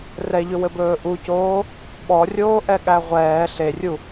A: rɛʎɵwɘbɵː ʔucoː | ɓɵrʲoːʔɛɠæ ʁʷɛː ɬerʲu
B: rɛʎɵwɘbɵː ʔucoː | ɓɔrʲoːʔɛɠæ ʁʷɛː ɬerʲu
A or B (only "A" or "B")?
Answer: B